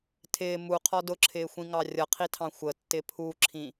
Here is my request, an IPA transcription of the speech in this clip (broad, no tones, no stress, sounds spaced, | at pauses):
tʰ ɪː m u qʰ ɔ d ʊ ǁʰ ɪː xʷ ĩ ŋ ɑ rʲ ʌ qʰ i tʰ ɑ̃ xʷ ə tː ɪ pʰ u ǁʰ ĩ